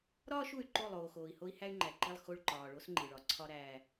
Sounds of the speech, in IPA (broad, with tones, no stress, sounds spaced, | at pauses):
ɾ ɒː˦ ʃ u˨ y̯ ǃ o˦˨ lˠ oː˨ x oː˨ i̯ h o˦ i̯ h æ˦ y̯ ŋ͡ǃ æ˨ ǃ i˦˨ lˠ x o˦˨ ɭ ǃ ɒː˨ ɭ o˦ s ŋ͡ǃ i˨ ɭ ɒ˨ ǀʰ ɒ˦ ɾ æː˦